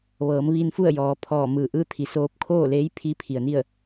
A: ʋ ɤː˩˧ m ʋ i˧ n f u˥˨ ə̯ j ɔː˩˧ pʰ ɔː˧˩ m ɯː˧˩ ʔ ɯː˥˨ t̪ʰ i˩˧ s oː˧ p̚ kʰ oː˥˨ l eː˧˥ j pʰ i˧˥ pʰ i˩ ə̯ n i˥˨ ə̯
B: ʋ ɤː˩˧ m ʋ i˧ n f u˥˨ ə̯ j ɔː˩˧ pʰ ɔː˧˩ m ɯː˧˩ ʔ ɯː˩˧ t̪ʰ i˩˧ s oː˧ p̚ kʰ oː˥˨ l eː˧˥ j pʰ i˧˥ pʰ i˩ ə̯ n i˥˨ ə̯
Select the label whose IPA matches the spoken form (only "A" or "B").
A